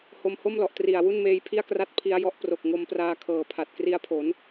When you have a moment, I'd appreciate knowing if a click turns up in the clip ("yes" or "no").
no